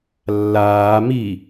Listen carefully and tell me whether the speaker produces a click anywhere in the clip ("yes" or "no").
no